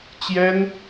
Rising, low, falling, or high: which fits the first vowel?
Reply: high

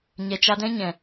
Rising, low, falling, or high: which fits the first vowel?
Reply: low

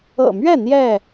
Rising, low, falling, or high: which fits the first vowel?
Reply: low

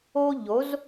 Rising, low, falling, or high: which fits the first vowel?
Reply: high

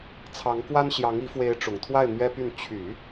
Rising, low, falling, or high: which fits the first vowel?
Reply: rising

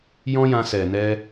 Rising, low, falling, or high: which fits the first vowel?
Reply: high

